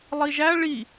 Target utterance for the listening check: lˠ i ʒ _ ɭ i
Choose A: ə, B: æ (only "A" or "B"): B